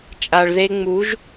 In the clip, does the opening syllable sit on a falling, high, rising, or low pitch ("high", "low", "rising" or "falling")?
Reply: low